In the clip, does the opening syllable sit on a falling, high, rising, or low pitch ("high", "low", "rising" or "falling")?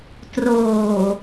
low